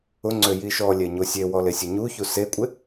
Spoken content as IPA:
ʊ ŋ͡ǀ ø j i ʃ ɔ lʲ ɛ ɲ o sʲ e w ɔ l e sʲ ʊ ɲ u ç u s e kʷʼ ɪ

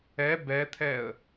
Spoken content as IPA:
ɛ b ɛ t̪ʰ ɛ ə̯

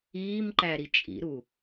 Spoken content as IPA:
iː m ǃ æ ɾ i t͡ʃʼ ḭ ɾ u

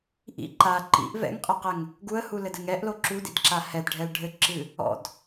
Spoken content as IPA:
ʔ ḭ ǃ a ǃ ḭ ʔ v ɛ̰ ŋ qʼ ɛ q ɛ ŋ | ɡ u ə̯ h u l ɘ d ɘ ŋ ɛ ʔ l o ǁ u d ḭ d ǁ a h ɛ d ɖʱ ɛ l ɖʱ ɘ ǁ ɨ | ɔ̰ d

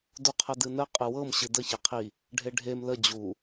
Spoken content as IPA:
d u qʰ ə d ɨ n ə qʼ ɨ w ɤ m ɕ ɨ d ə ç ɛ qʰ i | ɖʱ e ɖʱ e m l ə d͡ʑ u

